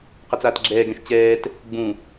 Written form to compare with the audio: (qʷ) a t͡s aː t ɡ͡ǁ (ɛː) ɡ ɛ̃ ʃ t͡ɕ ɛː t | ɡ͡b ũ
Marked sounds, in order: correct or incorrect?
incorrect: q, correct

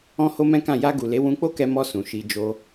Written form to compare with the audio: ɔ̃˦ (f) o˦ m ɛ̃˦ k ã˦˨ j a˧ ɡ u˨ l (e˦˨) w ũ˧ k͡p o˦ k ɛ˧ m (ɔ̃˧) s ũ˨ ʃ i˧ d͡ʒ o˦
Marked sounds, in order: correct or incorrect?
incorrect: h, incorrect: e˨˦, incorrect: ɔ˧

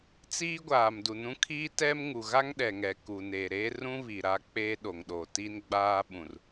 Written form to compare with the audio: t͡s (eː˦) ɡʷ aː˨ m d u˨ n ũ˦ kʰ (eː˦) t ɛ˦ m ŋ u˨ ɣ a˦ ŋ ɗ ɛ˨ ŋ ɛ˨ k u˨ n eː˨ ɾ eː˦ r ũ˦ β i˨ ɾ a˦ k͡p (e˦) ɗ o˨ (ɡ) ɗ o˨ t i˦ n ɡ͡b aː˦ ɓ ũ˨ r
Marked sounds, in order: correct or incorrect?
incorrect: iː˦, incorrect: iː˦, incorrect: eː˦, incorrect: ŋ

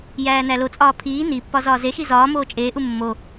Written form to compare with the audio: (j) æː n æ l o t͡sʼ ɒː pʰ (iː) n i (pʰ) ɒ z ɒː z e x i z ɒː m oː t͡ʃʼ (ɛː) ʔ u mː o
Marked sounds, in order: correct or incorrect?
correct, correct, incorrect: pː, incorrect: eː

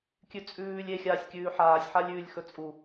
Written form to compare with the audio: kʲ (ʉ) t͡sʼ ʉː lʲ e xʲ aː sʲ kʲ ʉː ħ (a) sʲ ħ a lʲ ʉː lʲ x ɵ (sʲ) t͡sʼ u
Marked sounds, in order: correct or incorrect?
correct, incorrect: aː, incorrect: none

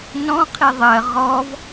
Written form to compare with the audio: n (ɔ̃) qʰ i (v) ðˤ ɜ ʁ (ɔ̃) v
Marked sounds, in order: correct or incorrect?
correct, incorrect: none, incorrect: ɔ

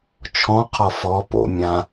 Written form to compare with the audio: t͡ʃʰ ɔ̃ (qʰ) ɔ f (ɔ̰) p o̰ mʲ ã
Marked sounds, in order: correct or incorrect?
correct, incorrect: ɔ

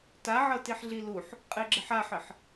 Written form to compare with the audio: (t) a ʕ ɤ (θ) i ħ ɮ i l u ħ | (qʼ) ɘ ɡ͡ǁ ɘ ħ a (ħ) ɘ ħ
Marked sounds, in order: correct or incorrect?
correct, incorrect: t, correct, correct

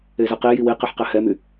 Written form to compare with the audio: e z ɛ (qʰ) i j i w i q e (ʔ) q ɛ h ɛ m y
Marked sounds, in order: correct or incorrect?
incorrect: q, incorrect: ħ

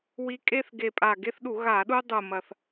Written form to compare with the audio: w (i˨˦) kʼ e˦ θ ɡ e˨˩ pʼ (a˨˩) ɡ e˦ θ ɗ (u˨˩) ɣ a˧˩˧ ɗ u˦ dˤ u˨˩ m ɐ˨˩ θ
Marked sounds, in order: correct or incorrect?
correct, correct, incorrect: u˧˩˧

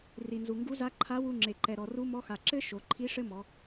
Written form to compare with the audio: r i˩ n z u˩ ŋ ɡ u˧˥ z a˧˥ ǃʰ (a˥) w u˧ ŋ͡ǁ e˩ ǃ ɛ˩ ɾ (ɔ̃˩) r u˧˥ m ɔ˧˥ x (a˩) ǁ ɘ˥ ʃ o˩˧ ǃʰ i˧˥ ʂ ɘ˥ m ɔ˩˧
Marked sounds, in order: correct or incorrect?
incorrect: a˧˥, incorrect: ɔ˩, correct

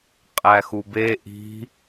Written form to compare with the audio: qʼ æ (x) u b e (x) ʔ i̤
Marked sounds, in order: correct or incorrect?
correct, incorrect: none

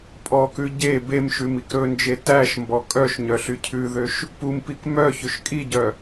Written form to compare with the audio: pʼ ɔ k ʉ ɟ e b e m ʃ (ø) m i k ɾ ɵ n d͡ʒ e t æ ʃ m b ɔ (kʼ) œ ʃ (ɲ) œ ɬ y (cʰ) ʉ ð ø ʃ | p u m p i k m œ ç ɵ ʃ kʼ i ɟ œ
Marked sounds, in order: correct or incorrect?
incorrect: ʉ, correct, correct, correct

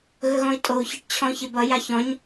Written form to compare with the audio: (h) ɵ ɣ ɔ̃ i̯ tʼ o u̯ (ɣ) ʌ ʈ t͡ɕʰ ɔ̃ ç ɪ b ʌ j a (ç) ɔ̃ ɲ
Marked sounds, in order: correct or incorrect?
incorrect: ɣ, incorrect: ç, correct

